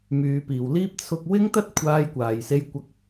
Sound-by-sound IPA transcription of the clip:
myː˨˧piː˨wliː˥p̚ t͡sʰʊ˧k̚ wɪ˥ŋt̪ɐ˥t̚ kʷʰaː˧jkʷaː˨jse˧j kʷɐ˧k̚

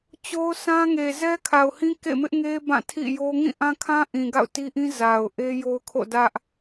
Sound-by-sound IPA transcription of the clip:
t͡ɕo˦ʊ̯sã˦ŋe˨ zɛ˦kʰa˨ʊ̯hĩ˦ kḛ˦˨mɪ˦ʔŋe˦ bã˦˨ tʰḭ˦˨jo˦ ŋĩ˦˨ʔã˦kʰã˦ ʔĩ˨ɡa̰˦˨ʊ̯ti˦ʔĩ˦ za˨ʊ̯ ʔe˦jo˦ʊ̯kʰo̰˦˨dä˦ʔ

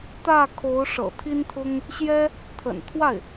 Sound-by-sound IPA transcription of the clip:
t̪ä˥˩kʰo˧˥ʊ̯ʂɤ̰˨˩ t̪ʰi˥nt̪ʰʊ˥ŋ | ɕjɛ˥ | t̪ʰə̰˨˩nt̪ʰwa˥˩ɪ̯

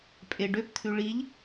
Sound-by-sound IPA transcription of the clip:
pʼeɖøpt̪ʰʉ ɭiʎ

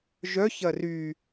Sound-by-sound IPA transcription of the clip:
ʒœ çɐry

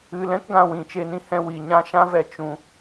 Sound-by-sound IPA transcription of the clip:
ɨ˧lɛ̃˦kɡã˧ wĩ˨t͡ʃe˧nĩ˦hɛ̃˧ wi˨ɲã˦ ʃã˦vɛ˧ t͡ʃũ˧

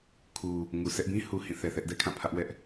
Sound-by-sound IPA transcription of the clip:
kʰu˨ | ŋu˨sʰɛ˦ʔ bĩ˦hu˨ hĩ˦˨θɛ˨θɛ˦ʔ dɛ˦kʰã˦˨pʰä˦ʔwɛ˦ʔ

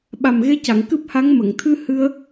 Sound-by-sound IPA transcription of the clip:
ɓa˨˩mɣe˧˥ca˨˩˨ŋ kɨ˦˥p̚ha˧˥ŋ mə˨˩˨ŋt̪ʰɨ˧ hɨ˧ə̯

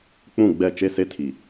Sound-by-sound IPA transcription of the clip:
k͡pũ˦˨ɡ͡bɛ˦˨ t͡ʃe˦ se˦tʰi˨

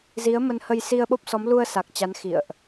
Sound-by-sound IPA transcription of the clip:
zi˨˦ə̯ mə˧nhə˧j si˧ə̯ɓo˦˥p̚sɔ˨˦m lu˧ə̯sa˨˩k̚ t͡ɕa˨˦nxḭ˧˨ə̯ʔ

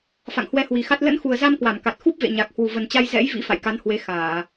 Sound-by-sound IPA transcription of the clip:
fa̰˧˨ŋhwɛ˧hwi˨˩xa˦˥t̚ lə̰˧˥nxu˨˩ə̯za˧m kwa˧˩mka˨˩t̚ xu˦˥p̚vḛ˧˨ ɲa˨˩k̚ hwu˨˩və˨˩nt͡ɕa˧j zɛ̰˧˥j vḭ˧˥ fa̰˧˨jka˨˦nhwe˨˦ xaː˧˩˨

